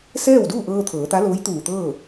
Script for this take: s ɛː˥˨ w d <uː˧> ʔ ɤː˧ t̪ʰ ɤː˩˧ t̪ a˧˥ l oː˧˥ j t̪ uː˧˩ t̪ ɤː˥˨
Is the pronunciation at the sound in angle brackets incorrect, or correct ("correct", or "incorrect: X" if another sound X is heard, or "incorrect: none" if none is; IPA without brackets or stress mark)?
incorrect: uː˥˨